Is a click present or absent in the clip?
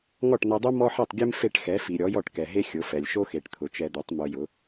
absent